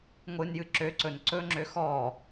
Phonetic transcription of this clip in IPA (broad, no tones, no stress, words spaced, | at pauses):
ŋʷɨnjɨ ǁøǀɵn ǀɵŋ͡ǁø xɔ